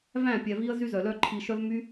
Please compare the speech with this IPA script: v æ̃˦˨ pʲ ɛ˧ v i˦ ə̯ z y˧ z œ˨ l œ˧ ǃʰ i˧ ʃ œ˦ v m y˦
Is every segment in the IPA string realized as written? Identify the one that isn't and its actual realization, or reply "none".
none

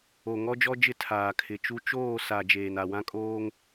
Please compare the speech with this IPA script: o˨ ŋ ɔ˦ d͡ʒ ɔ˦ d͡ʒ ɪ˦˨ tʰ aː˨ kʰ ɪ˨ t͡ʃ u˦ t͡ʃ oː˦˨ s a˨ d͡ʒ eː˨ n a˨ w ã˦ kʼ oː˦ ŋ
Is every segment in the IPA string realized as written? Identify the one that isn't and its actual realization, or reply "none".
none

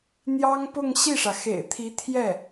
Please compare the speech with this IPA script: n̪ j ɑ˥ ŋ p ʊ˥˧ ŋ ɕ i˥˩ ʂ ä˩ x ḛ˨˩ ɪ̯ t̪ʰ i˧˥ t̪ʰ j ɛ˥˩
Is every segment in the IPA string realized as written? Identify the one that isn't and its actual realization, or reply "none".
none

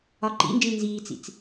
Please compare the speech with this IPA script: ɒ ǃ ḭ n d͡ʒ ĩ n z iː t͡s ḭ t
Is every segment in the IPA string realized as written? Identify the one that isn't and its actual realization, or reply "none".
t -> t͡s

